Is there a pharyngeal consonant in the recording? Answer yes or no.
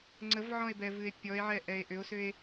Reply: yes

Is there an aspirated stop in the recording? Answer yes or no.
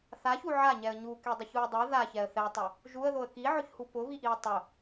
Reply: no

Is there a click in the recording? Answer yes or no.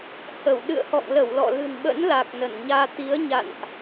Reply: no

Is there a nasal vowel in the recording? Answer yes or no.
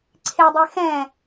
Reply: yes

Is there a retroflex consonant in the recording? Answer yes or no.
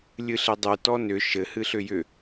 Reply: no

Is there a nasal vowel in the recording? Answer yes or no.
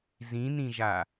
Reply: yes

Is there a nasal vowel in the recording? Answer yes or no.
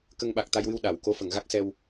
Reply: no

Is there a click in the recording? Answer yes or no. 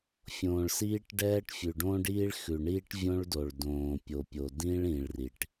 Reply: no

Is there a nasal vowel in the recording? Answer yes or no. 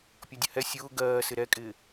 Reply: no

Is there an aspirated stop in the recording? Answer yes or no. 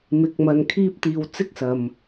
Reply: yes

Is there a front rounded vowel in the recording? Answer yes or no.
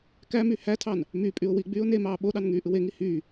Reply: yes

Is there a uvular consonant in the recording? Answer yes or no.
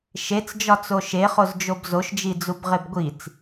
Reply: yes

